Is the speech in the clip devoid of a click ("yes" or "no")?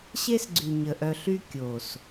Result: no